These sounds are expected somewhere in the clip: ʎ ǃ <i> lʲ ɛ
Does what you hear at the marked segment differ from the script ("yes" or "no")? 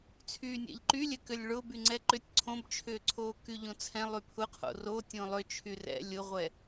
yes